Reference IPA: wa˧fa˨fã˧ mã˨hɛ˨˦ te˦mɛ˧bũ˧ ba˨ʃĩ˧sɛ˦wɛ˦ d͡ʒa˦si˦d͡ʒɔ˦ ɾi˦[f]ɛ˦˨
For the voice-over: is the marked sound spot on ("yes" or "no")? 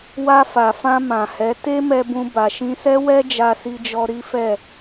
yes